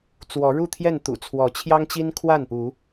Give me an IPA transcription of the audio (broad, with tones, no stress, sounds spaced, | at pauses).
t͡s w ɔ˨˦ ɻ u˥˨ t̪ʰ j ɛ˥˨ n t̪ ṵ˨˩ t͡sʰ w ɔ˨˦ t͡ɕʰ j ɑ˦ ŋ t͡ɕ i˦ n kʰ w a˥˨ n p u˨˦